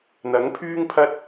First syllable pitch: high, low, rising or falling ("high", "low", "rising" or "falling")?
rising